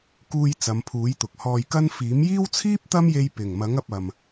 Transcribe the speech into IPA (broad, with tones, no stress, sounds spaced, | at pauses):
k uː˧ j t͡s ɐ˨˧ m pʰ uː˨˥ j t̪ ʊ˨ k̚ h ɔː˧ j k ɐ˥ n f iː˨˥ m j iː˥ w t͡sʰ iː˥ p̚ t̪ ɐ˥ m j e˧ j p ɪ˨˩ ŋ m ɐ˨˥ ŋ ɐ˧ p̚ ɐ˨ m